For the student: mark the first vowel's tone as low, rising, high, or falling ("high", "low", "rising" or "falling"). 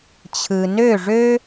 low